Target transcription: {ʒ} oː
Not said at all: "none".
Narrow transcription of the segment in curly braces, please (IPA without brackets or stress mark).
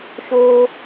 ʃ